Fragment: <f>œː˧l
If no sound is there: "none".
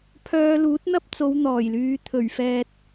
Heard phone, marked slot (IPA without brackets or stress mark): pʰ